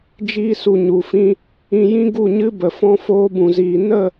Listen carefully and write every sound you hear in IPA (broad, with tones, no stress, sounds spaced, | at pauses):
d͡ʒ iː˧ s u˨ ɲ u˨ f ĩ˦ | ĩ˧ j ĩ˦ ɡ u˦˨ ɲ ɨ˦ b ə˨ f ɔ̃˧ f oː˧ b ũ˨ z iː˨ n ə˦˨